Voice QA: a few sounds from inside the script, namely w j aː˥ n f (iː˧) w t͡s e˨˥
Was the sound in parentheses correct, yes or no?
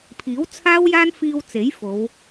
yes